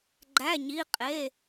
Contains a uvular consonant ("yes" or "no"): yes